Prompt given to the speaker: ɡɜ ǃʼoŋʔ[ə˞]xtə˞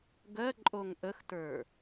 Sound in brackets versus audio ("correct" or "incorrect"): incorrect